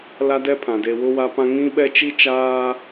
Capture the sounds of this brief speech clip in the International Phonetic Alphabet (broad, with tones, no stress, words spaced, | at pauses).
la˦dɛ˦pʰã˨ de˨ wʊ˦wa˦pã˦ ŋĩ˦ɓɛ˦ t͡ʃi˦t͡ʃaː˦